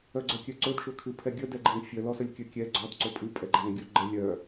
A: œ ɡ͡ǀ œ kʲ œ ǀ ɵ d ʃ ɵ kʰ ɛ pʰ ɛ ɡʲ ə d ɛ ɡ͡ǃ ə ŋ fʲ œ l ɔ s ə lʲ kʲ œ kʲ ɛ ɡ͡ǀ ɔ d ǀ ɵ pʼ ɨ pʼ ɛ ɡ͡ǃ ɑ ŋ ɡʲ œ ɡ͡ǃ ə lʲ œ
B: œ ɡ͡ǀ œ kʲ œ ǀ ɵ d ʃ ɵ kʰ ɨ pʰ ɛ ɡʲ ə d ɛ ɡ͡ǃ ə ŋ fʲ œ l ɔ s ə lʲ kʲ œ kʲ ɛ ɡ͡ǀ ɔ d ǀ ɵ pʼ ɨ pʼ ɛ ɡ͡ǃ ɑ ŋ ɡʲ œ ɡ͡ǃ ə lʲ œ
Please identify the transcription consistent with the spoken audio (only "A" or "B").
B